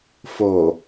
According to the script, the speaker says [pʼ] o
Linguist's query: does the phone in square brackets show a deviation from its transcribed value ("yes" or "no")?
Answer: yes